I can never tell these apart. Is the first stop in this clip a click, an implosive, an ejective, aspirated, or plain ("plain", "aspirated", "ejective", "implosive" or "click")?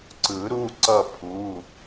click